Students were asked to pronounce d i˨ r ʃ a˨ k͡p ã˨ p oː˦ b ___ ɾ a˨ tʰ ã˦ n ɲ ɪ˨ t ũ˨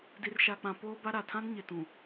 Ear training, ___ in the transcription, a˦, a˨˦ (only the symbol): a˦